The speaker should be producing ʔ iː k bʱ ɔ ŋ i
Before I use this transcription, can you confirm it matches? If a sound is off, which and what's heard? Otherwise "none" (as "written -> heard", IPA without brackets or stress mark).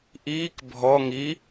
none